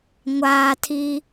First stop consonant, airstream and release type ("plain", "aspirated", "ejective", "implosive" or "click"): aspirated